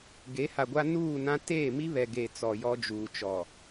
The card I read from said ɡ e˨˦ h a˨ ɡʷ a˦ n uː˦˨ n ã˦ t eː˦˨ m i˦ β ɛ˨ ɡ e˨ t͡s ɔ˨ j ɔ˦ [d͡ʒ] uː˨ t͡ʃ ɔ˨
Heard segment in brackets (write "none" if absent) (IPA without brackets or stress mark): d͡ʒ